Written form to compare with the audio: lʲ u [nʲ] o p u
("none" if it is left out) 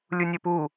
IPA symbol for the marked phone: nʲ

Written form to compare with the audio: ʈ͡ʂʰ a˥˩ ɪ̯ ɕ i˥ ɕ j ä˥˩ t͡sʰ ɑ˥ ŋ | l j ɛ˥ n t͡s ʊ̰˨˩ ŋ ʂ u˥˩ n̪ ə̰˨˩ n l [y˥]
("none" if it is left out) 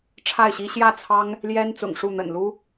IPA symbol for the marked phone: u˥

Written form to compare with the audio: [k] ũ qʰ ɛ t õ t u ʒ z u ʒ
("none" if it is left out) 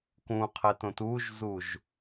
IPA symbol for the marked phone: k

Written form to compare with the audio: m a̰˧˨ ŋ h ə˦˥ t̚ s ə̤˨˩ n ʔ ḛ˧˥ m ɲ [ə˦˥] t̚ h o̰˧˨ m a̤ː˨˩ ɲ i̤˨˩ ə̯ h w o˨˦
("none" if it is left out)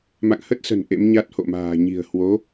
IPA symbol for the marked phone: a˦˥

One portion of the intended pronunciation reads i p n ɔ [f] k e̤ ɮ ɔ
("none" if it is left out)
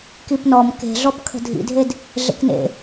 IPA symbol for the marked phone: m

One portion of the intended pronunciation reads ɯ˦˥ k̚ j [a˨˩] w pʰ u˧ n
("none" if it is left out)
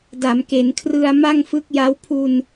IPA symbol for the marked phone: a˦˥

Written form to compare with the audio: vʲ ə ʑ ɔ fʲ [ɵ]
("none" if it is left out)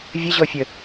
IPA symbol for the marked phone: ə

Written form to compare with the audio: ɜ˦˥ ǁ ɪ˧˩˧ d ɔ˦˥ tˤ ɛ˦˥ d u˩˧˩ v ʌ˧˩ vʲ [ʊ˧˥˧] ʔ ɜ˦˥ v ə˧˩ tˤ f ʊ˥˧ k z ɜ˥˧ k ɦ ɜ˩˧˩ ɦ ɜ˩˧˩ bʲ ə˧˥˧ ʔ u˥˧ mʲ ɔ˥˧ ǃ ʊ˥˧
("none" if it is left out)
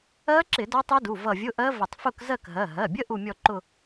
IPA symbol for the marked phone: ʊ˧˥˧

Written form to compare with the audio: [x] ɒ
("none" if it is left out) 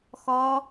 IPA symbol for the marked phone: x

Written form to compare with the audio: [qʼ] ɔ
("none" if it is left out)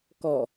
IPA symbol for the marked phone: k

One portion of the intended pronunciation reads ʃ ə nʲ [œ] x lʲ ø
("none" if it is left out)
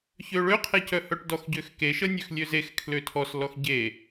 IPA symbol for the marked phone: ø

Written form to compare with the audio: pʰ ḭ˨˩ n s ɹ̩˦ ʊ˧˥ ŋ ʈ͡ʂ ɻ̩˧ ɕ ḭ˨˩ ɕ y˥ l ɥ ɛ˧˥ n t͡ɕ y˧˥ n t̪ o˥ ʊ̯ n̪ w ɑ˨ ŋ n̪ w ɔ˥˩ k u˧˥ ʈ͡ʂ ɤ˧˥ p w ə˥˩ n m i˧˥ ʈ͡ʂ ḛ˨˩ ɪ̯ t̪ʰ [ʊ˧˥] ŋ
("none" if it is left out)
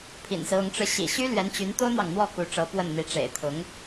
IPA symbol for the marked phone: ʊ˧˥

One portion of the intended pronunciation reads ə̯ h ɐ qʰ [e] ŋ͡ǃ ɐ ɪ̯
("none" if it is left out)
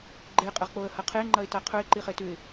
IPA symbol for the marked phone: e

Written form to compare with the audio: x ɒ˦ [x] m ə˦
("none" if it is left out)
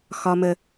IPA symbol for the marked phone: none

